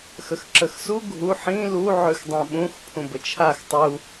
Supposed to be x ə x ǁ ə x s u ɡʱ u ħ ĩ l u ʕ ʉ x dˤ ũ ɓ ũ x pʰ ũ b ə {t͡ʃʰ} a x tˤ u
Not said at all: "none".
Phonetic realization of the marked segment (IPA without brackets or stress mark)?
t͡ʃʰ